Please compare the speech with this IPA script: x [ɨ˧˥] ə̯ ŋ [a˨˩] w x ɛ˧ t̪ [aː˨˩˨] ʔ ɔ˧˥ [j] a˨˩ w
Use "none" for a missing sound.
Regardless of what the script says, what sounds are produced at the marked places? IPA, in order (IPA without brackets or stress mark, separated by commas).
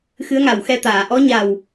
ɨ˧˥, a˨˩, aː˨˩˨, ɲ